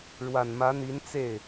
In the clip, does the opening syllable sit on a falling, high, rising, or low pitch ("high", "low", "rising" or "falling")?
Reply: low